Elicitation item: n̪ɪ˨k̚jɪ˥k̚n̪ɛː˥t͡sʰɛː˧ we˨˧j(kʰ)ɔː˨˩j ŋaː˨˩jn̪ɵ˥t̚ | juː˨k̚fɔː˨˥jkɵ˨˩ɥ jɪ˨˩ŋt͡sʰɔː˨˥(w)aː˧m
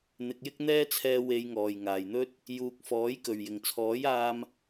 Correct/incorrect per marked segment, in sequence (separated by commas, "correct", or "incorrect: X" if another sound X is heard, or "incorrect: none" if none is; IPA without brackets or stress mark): incorrect: ŋ, incorrect: j